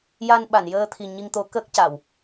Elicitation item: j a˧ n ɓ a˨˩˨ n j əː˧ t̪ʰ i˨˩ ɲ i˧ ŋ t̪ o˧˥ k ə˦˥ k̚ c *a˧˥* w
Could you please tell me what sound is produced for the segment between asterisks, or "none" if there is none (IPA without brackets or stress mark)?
a˨˩˨